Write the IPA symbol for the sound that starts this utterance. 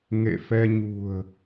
ŋ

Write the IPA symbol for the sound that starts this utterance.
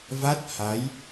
v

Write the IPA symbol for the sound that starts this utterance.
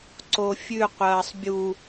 ǀ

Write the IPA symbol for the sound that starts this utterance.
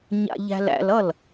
ɲ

